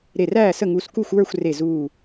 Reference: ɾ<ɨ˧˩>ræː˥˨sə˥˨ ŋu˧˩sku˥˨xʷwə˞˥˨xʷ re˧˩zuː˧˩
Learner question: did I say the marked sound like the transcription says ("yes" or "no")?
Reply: no